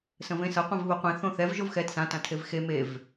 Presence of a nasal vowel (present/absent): present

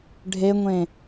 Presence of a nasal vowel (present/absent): present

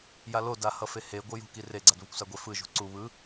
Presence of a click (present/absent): present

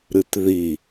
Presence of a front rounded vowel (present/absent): absent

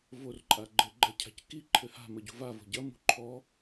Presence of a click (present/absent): present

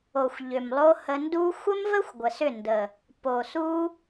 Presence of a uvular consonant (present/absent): absent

